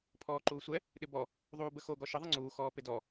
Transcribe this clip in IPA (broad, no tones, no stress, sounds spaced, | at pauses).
pʰ ɔː ǃ uː sʷ ɛ | ɗ ɪ b ɔ | ðˤ uː b ə x o ɡ ɔ ʃ ɪ ðˤ ə ŋ͡ǀ uː x ɔː p ɪ d ɔ